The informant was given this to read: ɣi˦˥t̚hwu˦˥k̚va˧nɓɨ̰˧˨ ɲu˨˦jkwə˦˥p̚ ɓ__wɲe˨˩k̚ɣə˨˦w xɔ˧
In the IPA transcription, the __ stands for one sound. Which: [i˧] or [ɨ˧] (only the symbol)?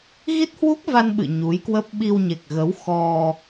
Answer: i˧